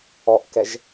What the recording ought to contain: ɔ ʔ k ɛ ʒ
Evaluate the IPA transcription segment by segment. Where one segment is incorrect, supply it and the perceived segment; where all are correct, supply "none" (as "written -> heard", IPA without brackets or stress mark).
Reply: none